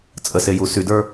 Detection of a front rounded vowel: present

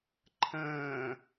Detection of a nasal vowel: present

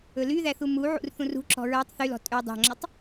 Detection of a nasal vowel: present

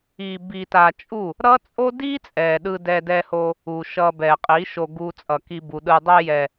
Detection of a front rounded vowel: absent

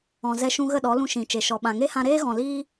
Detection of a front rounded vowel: absent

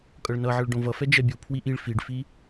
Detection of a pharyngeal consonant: present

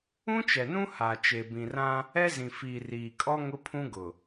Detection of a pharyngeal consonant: absent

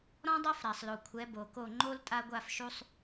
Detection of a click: present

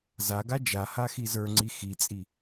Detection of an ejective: present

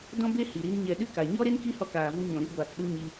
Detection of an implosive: present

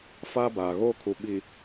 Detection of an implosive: present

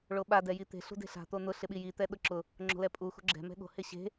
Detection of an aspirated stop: absent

